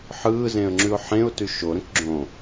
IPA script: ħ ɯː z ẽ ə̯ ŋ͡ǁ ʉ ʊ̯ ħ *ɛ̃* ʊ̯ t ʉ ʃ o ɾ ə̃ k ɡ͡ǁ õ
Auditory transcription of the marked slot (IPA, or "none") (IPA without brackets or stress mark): ẽ